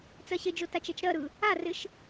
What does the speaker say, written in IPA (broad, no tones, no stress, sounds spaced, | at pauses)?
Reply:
t͡s ɜ ɕ ɪ d͡ʒ o t a t͡ʃ ɛ t͡ʃ ɾ ɜ ɾ ɯ | a r ɪ ʃ